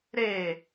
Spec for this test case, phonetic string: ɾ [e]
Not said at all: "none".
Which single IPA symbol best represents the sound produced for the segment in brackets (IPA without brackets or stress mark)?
e